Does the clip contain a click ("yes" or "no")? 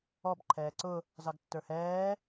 yes